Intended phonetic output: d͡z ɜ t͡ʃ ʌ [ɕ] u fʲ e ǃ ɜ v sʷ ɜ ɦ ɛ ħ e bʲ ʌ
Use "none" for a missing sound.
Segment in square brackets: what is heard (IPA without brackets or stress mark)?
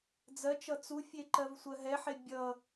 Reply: t͡s